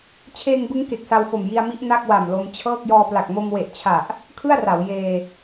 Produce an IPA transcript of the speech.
t͡ɕʰeː˧ŋbɯ˦˥ŋ ke˨˩k̚sa˧wfo˨˩m ji˧a̯mi˦˥ʔ na˥˩k̚wa˨˩mlo˧mt͡ɕʰɤː˥˩k̚ jɔː˧pla˨˩k̚ mo˧mwe˨˩ʔt͡ɕʰa˨˩ʔ | kʰɯ˥˩a̯ra˩˦w jeː˧

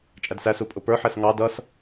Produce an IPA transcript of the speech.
t͡ʃʼædsæsu pʼʊpə˞ħɛs ŋɑ dʌs

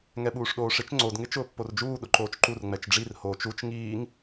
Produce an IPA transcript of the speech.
ŋɛɓuːʂɗoːʂɪt͡ʃ ŋ͡ǀod ŋɪt͡ʃʊːpːord͡ʒuː ɗʊǃoːt͡ʃǃur ŋ͡mɛt͡ʃɖ͡ʐir hoːt͡ʃut͡ʃ ŋiːŋ

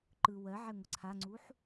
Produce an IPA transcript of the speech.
ǃɯ wɜʕɛ ŋʷəǀʰaŋ͡ǀuħ

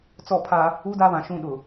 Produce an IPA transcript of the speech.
t͡sɔ˦˨pʰa˦ | uː˦daː˦βã˨ ʃũ˦˨ɗʊ˨

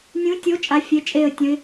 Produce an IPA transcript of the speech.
nʲũ˨˦tʲo˨˦ t͡ʃʼa˨˦fʲe˩˧˩t͡ʃʼe˧˩ə̯tʲə̃˨˦ɪ̯

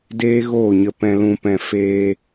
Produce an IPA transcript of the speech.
deː˦ɣoː˦˨ɲə˧ pɛ̃˧lũ˧ pɛ̃˧ feː˧

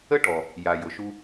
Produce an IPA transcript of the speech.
ə˦ʈɔ˨ | ja˨jʊ˨ʃu˦

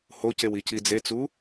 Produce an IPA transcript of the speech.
hocew icid͡zet͡su

